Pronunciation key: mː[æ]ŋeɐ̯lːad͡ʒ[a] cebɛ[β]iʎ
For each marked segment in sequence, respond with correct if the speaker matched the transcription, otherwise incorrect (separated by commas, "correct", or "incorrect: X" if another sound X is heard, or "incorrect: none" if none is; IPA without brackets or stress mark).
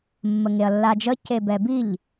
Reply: incorrect: ə, incorrect: ə, incorrect: b